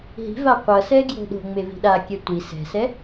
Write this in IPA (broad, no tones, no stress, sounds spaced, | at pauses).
ɦ i̤ v a qʷ ʌ s ɛ ɡ j o̤ ɗ o̤ ŋ͡m e v i̤ ɗ a kʲ ɛ tʷ i s ɛ̤ s ɛ